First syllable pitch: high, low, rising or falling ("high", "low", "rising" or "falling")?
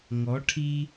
rising